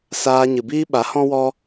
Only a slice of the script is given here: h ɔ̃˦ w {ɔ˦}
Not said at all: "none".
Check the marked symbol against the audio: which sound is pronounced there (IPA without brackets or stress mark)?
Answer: ɔ˦